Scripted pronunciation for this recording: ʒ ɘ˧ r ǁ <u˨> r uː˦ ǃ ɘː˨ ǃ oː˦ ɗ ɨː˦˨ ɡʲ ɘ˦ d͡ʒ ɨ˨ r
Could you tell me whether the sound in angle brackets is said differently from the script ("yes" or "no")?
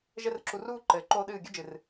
no